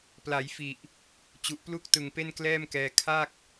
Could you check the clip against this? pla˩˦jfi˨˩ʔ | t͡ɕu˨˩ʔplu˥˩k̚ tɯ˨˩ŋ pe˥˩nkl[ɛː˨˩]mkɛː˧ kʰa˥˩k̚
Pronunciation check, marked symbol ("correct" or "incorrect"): incorrect